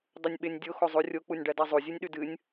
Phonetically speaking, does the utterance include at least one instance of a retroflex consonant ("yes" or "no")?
yes